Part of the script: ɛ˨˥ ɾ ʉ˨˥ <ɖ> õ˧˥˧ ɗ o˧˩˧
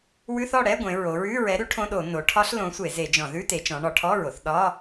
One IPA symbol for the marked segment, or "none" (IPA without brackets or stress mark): ʈʰ